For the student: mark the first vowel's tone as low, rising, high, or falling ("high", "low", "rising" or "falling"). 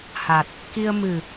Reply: low